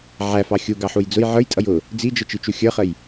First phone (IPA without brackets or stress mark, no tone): ʕ